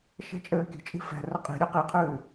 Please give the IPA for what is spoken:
ʃ ɛ̤ t͡ʃʼ ɘː kʲ ə̤ t͡ʃʼ i̤ f ɛ̤ r ə qʼ i̤ ɾʲ ɛ q i qʰ ɨː

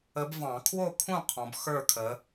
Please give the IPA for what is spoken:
ə˨˦ b v ɑ̃˨˩˦ kʰ w o˥˨ kʰ ũ˥˨ qʰ ɔ̃˨˦ b x ə˞˥˨ kʰ ə˨˦

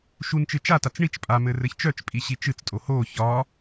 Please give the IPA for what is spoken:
ʃ u n t͡ʃ ɨ t͡ʃ a t a t͡s ɳ i t͡ʃ pʼ a m ɘ r ɘ ç t͡ʃ œ t͡ʃ pʼ i ɕ i t͡ʃ ɨ t͡s tʼ o h o ç ɒ

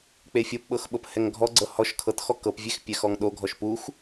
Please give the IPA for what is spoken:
k͡p e fʲ o p ɓ ɤ x ɓ ɤ p h ɛ ŋ ɡʱ ɔ ɡ͡ǀ ɤ h ɔ ʃ kʰ ɤ t x ɔ k ɤ p vʲ e x pʲ ɛ x ɔ ŋ ɗ o ɡʱ ɔ ʃ p u x

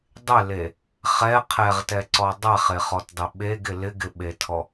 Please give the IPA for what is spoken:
dˤ ɪ l e | χ ɛ qʰ ɛ ʁ t ɛ ǀ ɔ dˤ ɛ χ e χ ɔ t dˤ ɪ ɓ e ɡ ɪ l ɪ ɡ ɪ ɓ e tʰ ɔ

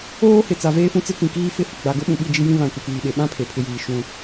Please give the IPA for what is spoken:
oː˦ h ɪ˨ t͡s a˨ v eː˦ f ũ˦ t͡s ɪ˦ k ĩ˨ k iː˦ f ɪ˦˨ h ʊ˨ ɡ͡b a˨ ɡ ʊ˦ ɓ ũ˨ ɓ i˦˨ d͡ʒ i˦ j ĩ˦ β ã˨ kʷ ɪ˨ p iː˨ ɓ e˨ ɓ ã˦ pʰ e˨ pʰ ɪ˦ j iː˨ ʃ ũ˨

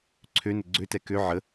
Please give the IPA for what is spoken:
ǀʰ ø n ə ɡ͡ǀ ø t ɛ k ø ʕ ə

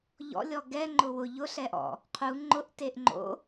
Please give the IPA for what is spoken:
ʎ ɔ̰ lʲ ɔ ɡ ɛ ŋ͡ǃ ʊ w ʊ ʎ ʊ ɬ ɛ ʔ ɔ̰ | qʰ u ŋ͡ǃ ʊ ʔ t e ʔ ŋ͡ǃ o̰

